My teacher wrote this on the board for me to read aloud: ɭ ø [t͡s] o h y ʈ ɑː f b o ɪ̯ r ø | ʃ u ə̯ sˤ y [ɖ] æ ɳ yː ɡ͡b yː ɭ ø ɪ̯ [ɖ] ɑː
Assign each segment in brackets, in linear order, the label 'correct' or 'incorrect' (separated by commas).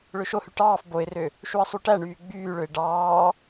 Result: incorrect, incorrect, correct